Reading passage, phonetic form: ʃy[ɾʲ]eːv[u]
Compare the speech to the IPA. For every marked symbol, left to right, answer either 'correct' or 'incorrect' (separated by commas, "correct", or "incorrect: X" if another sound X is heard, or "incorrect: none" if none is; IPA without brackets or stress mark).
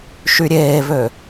correct, incorrect: ø